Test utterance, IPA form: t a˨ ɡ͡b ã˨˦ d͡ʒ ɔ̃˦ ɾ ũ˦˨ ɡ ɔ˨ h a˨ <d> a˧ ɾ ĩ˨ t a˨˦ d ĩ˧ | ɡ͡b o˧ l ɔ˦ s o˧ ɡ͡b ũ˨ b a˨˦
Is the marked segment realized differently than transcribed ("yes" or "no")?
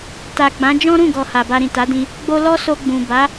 yes